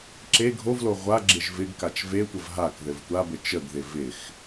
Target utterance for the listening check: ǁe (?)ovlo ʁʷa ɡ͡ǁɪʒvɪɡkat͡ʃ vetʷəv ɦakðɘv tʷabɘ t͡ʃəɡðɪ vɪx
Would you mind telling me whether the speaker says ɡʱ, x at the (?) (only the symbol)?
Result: ɡʱ